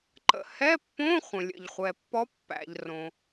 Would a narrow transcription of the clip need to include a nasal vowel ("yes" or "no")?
yes